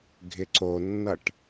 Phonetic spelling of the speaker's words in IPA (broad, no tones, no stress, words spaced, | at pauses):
ɡʱɪǀonːʌʈ